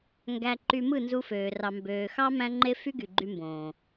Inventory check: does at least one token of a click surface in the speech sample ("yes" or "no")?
yes